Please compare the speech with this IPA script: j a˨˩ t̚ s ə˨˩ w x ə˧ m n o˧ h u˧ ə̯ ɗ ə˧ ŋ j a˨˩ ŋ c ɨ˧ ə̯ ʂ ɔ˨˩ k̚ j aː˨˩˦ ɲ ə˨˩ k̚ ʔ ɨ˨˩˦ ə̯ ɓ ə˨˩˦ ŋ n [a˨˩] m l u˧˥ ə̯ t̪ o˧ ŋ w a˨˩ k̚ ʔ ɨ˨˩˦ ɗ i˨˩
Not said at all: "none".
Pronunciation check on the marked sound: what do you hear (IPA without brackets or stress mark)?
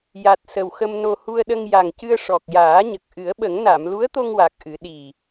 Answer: a˨˩˨